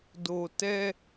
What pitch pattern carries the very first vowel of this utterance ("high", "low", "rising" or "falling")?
low